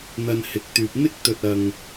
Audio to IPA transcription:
n̪ɐ˧nhɪ˨˥k̚t̪yː˨p̚ n̪ɪ˥k̚t̪ɵ˨t̚ ɐ˨ŋ

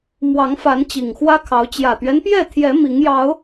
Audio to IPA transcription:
mwɑ˨˦ŋfa˨˦n t͡ɕi˨˩ŋxwä˦kʰɑ˨˦ʊ̯ t͡ɕjä˨˩t̪ɥɛ˦npjɛ˥˨t̪ʰjɛ˨˦ mi˨˦ŋjɑ˨˦ʊ̯

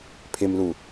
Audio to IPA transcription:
pʰɪmlu

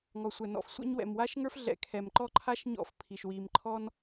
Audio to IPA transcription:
ŋɔ˩sʷɛ˩nɔ̰˩f sʷɛ̰˥ɲwɛ̰˩m wa˥ʃŋə˞˥fɮɛ̰˩ kʰɛ˩mǃɔ˥ ǃʰa˥ʃ ɲɔ̰˥fpʰi˩ʃ wi˩mǃʰɔ˥n

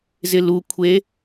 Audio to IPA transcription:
zɪlukʷʰe

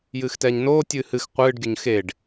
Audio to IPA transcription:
jɨːxtɛːɲnoː tʲɨːhɨx qʷɨːɖɡʲʊɲ xeɖ

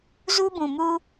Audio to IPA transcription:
zu˦bũ˨ mu˦

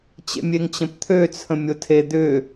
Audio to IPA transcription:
t͡ɕḛmʲeŋt͡ɕə̃pt̪ʰø t͡sʰə̃mʲotʰe d̪ʏ

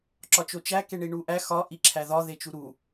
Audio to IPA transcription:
ǁɒt͡ʃot͡ʃæ keɳiɳuʔæ xɒ ʔiǁʰæðɒ ðet͡ʃuɾu

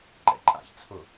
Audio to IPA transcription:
ǃɛ̰ǃʼa̰ç t͡sʰʊ

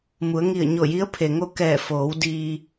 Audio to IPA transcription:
mu˩˧ə̯ŋi˧˩ə̯ɲo˧˩ji˧˥ə̯ pʰe˩ŋo˥˨ kɛː˧˩foː˩˧w diː˧

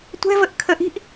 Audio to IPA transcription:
tʷɛ̤vəʔkʰəʔi̤ʔ

